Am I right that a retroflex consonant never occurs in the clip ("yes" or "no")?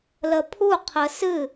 yes